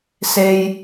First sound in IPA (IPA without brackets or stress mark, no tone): s